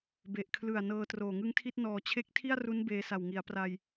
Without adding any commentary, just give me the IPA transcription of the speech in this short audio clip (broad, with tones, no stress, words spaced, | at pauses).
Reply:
be˨˩ʔkʰlɯ˨˩a̯ nɤː˧troː˨˩ ŋɯ˦˥ŋtʰi˥˩t̚ nɔː˨˩t͡ɕʰe˦˥k̚tʰi˥˩a̯ru˦˥n beː˧sa˨˩wŋi˩˦a̯ pra˧j